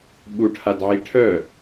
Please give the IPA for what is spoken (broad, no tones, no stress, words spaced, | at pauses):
ɓuʈʰadʕi ʈʰœ